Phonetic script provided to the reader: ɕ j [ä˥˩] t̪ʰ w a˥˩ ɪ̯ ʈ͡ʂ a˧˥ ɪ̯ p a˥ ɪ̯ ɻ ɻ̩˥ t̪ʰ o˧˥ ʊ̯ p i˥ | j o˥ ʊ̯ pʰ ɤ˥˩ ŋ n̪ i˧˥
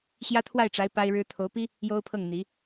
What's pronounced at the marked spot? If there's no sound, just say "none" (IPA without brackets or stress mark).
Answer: ä˥